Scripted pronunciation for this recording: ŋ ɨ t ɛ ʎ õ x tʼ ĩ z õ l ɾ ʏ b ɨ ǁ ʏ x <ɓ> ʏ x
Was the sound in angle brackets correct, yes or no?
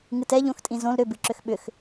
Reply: yes